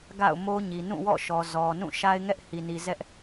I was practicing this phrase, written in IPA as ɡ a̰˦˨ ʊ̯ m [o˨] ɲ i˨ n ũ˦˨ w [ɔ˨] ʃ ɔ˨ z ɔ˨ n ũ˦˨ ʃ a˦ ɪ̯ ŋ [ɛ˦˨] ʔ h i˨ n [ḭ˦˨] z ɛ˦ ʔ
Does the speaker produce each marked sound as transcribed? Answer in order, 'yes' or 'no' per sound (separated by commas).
no, no, no, no